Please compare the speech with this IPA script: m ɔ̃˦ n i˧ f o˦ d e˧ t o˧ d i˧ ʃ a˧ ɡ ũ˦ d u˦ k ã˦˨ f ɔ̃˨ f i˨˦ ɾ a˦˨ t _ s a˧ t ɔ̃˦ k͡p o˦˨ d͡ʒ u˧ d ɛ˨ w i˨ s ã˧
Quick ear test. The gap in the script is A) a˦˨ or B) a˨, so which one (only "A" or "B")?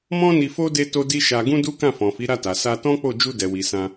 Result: B